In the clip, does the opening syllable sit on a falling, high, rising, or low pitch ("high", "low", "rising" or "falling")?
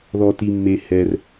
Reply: low